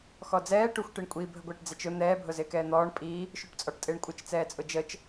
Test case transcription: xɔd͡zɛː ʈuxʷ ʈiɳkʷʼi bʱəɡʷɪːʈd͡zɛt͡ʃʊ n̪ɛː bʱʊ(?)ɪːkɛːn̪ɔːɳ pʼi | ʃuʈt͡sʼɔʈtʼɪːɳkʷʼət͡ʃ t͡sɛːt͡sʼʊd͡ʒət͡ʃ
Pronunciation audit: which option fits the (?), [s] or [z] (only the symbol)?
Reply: z